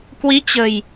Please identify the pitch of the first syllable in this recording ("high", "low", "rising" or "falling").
rising